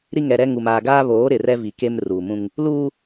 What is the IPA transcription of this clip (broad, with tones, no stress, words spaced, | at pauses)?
ɾi˦ŋɛ˨ɾɛ˦ŋu˨m aː˨ɡaː˦βoː˨˦ ɾɪ˨ rɛ˦vi˨ke˦m ru˨mũ˦ŋ | luː˦